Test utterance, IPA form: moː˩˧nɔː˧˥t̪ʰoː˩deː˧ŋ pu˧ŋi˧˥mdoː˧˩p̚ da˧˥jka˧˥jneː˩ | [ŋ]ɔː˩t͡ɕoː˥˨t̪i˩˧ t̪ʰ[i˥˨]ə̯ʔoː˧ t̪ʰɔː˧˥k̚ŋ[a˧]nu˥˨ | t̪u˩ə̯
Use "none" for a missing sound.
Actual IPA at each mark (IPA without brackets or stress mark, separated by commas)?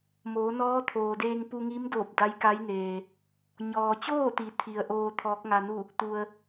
ɲ, i˩, a˧